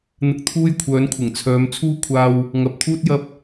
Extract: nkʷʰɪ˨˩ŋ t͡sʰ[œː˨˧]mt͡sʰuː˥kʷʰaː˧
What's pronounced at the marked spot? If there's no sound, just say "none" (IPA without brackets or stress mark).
œː˨˧